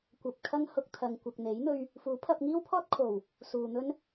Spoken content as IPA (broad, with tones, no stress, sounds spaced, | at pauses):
kʷ ɐ˨ p̚ kʰ ɐ˥ ŋ h ʊ˧ k̚ t̪ʰ ɐ˨ ŋ kʷ ɐ˨ k̚ n̪ e˨˥ j n̪ ɵ˧ ɥ | f uː˨˥ pʰ ɐ˧ p̚ ŋ iː˥ w pʰ ɔː˥ t̚ kʰ o˨˩ w | s uː˨ n̪ ɵ˥ n